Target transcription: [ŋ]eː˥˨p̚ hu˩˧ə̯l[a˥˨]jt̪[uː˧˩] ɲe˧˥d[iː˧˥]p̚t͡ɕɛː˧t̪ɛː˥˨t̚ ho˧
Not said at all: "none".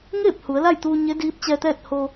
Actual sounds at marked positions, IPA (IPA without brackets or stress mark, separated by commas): ŋ, a˥˨, uː˧, iː˧˥